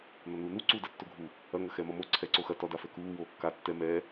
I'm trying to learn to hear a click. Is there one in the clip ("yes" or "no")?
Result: yes